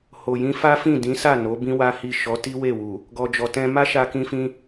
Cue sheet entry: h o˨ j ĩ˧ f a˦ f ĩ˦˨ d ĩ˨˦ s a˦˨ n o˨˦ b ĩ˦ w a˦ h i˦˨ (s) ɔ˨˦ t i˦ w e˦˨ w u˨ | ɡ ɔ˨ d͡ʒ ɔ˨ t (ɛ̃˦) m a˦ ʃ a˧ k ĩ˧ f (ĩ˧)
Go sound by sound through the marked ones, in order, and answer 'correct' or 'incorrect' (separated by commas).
incorrect, incorrect, correct